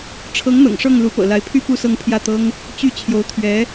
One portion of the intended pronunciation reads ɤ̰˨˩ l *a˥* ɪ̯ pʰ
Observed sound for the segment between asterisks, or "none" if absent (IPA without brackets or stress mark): a˧˥